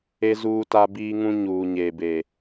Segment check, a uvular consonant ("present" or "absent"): absent